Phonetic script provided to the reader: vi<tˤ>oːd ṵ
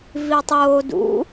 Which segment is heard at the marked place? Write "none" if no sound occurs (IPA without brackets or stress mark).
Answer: tˤ